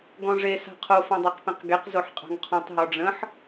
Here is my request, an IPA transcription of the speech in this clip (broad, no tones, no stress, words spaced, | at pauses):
ɡɔ̃ʐe sa̤qʰo fõdˤɑqpẽqɡeq zoħqʼɑ̤ŋqʰɔ̃tˤ ɦɔɖ͡ʐə̃ħ